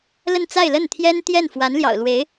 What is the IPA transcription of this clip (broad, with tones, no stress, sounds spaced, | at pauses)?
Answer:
l ə˥˧ n t͡s a˥˧ ɪ̯ l ə˥˩ n t̪ʰ j ɛ˥ n t̪ j ɛ˥˩ n f w a˧˥ n l j ɑ̰˨˩ ʊ̯ l w e˧˥ ɪ̯